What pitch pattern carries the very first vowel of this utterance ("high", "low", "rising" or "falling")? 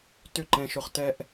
falling